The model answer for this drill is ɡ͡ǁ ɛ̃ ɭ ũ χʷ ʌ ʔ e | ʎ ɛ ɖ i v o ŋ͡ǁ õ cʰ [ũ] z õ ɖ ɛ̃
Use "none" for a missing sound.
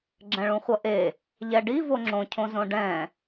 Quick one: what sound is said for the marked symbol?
õ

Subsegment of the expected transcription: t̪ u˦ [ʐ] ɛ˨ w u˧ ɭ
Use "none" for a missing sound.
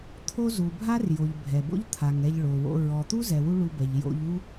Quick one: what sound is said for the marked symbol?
z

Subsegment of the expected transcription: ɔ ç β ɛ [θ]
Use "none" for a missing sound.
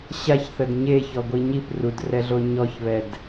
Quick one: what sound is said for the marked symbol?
d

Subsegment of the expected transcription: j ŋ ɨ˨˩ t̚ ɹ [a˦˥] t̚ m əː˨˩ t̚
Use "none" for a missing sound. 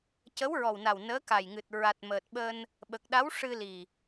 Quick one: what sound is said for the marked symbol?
a˨˩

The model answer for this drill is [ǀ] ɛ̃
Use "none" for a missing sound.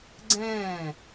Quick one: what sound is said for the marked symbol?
ɡ͡ǀ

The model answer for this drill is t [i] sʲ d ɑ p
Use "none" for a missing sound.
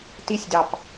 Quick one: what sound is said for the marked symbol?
i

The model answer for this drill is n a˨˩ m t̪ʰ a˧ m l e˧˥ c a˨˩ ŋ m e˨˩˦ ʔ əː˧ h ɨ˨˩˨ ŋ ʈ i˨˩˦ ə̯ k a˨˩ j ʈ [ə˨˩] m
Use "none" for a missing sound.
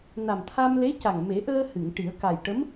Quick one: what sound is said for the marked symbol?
ə˧˥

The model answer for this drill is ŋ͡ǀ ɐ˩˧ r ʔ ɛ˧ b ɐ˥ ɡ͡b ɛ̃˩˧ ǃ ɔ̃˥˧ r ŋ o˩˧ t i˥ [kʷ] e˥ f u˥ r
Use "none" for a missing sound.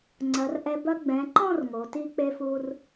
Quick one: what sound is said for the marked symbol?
k͡p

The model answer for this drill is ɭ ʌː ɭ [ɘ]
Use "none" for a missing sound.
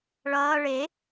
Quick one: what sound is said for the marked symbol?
e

